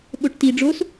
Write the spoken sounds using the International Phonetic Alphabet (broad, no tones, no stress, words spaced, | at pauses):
ɓoʈti ɖ͡ʐos